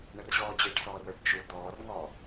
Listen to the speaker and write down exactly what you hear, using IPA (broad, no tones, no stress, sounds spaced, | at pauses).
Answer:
ɳ ə r ʑ ɔː d͡ʑ ɪː ʈ s ɔː r ə˞ ɖ t͡ʃ u d̪ ɔː r ŋ ɔː